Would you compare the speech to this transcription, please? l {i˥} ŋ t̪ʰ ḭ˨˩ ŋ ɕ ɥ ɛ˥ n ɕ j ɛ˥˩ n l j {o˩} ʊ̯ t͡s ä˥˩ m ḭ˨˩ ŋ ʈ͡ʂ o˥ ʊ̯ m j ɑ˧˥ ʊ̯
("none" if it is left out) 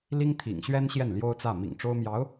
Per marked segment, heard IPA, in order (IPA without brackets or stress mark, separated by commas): i˥, o˥